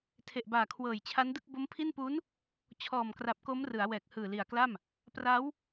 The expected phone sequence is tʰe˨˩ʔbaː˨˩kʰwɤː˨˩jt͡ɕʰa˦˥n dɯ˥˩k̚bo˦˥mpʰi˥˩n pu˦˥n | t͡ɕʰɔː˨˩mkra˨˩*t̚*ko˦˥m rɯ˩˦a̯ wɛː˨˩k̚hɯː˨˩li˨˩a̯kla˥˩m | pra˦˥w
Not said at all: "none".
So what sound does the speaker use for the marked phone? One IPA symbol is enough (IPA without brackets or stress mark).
p̚